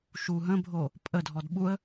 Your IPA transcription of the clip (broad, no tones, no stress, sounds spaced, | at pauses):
ʃ u ɦ ə̃ bʱ o | pʼ ə dʱ ɔ d ɓ u ə̯